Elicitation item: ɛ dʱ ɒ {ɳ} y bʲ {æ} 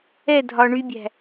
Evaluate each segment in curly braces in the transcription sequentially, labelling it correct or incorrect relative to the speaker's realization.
correct, incorrect: æ̤

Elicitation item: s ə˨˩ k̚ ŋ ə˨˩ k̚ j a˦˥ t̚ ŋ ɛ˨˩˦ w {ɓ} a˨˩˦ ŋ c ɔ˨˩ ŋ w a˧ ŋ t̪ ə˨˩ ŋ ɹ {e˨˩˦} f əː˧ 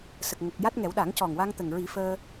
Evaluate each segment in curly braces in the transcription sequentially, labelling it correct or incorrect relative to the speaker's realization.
incorrect: ɗ, incorrect: i˨˩˦

